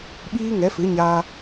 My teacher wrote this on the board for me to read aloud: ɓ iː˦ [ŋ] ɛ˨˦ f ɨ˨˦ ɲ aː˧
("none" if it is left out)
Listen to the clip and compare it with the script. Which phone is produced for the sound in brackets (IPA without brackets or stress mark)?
ŋ